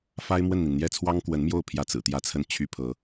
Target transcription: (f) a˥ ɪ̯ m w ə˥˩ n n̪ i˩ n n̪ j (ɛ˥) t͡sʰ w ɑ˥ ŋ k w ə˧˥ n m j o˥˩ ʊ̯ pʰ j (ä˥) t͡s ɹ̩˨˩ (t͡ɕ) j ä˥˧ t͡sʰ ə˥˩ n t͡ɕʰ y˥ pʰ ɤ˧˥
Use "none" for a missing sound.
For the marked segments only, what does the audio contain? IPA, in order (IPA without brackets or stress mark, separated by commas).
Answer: f, ɛ˥˩, ä˥, t̪